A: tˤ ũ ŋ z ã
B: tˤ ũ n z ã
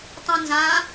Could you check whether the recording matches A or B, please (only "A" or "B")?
B